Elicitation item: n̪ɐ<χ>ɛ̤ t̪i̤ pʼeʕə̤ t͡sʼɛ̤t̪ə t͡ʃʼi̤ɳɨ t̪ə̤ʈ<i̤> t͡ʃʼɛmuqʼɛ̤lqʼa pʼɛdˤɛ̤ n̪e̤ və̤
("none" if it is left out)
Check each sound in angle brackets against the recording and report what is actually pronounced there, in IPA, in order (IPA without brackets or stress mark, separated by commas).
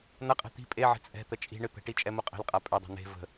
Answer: qʼ, i